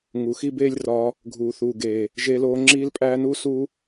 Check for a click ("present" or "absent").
present